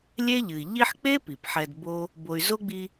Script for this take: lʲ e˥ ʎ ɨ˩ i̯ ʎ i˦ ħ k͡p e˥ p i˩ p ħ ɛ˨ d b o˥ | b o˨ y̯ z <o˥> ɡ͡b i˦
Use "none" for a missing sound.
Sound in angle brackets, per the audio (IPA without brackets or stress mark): o˥